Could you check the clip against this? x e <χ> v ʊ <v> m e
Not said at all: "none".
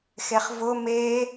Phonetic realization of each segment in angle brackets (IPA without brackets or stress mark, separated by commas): χ, none